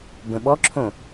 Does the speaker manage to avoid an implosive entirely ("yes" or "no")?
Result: no